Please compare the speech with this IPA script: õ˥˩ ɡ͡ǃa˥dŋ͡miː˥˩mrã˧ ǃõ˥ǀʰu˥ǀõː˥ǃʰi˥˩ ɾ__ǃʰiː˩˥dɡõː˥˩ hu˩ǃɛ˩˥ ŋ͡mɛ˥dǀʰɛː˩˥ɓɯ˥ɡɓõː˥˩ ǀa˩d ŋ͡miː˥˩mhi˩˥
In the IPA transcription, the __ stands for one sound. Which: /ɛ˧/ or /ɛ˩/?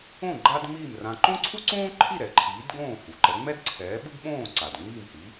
ɛ˩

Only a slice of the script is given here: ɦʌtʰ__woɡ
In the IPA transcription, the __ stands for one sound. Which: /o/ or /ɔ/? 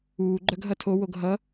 o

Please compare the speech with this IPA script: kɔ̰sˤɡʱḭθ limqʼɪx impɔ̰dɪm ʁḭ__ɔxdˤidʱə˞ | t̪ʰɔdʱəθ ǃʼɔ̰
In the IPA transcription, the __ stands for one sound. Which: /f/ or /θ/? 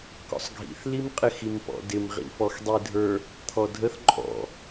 f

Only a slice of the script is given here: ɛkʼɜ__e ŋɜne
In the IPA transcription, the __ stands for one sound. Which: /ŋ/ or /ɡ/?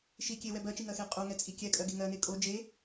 ɡ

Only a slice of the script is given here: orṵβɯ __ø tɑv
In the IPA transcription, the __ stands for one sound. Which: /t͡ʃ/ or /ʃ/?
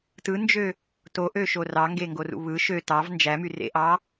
ʃ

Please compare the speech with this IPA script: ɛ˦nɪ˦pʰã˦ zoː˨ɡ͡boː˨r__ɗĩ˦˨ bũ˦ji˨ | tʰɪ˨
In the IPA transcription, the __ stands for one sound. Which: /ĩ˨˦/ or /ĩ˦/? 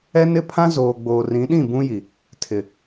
ĩ˨˦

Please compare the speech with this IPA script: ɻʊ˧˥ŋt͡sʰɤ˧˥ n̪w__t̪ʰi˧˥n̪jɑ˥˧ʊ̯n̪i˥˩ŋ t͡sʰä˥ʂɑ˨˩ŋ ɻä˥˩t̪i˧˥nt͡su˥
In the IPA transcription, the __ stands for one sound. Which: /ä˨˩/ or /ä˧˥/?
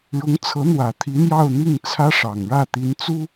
ä˨˩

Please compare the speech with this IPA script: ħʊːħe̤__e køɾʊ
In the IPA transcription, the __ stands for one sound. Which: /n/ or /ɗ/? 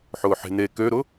n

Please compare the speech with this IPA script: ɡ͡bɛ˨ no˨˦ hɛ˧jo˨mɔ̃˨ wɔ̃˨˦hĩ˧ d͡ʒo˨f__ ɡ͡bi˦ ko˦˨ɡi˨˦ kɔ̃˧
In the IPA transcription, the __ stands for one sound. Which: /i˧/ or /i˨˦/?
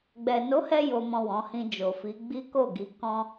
i˨˦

